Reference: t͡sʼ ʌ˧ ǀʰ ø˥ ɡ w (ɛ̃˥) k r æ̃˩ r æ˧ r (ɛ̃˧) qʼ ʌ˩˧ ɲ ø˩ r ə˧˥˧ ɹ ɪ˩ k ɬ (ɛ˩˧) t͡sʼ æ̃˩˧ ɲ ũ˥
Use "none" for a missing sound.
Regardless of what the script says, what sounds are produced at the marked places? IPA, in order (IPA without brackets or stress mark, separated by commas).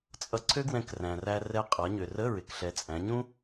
ɛ̃˧, ɛ˧, ɛ˩˧